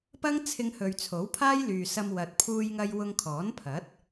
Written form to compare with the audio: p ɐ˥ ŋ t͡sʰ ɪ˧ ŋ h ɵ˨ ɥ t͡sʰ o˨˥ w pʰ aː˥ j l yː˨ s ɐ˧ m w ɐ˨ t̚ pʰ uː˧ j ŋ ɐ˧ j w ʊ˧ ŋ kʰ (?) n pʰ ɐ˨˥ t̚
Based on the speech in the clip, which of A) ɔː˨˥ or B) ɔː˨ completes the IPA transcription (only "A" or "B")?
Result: A